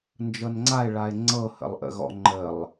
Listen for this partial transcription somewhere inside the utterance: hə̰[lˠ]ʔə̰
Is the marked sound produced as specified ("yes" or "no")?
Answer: yes